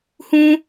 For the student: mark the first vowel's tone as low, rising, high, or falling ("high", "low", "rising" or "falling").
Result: high